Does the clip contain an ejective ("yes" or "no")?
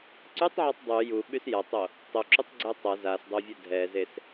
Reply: no